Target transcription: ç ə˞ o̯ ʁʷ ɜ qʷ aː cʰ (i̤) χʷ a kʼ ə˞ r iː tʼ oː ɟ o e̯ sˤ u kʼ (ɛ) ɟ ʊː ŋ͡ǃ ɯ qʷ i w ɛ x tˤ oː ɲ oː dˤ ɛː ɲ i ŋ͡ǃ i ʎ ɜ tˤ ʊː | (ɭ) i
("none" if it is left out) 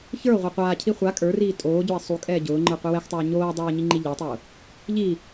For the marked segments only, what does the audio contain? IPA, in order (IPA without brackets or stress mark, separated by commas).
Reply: i, ɛː, ʎ